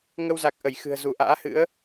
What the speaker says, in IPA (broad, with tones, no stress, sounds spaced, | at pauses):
ŋ ə˧ w z a˨˩ k̚ ʔ ə˧˩ j x ɨ̤˨˩ ə̯ z u˧˩ ʔ a̰ː˧˥ h ɨ̰˧˥ ə̯